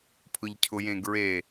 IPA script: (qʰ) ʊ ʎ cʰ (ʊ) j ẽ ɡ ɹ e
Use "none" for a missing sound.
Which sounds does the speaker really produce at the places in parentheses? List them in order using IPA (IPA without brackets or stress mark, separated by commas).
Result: pʰ, ʊ